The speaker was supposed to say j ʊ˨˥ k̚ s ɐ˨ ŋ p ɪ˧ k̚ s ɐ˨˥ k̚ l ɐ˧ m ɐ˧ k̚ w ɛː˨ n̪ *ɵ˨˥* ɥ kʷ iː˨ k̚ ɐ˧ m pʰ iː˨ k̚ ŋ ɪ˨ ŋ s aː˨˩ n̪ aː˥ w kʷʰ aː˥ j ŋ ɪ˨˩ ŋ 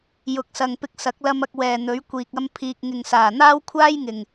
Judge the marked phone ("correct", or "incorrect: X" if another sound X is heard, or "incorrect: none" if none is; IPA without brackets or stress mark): correct